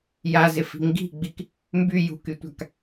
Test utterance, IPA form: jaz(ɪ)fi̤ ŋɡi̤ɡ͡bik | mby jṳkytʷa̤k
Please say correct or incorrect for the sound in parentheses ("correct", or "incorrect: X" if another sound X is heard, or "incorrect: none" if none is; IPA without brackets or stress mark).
correct